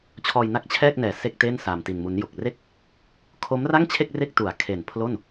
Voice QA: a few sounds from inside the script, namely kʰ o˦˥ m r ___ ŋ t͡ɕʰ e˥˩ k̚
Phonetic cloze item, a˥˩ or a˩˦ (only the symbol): a˥˩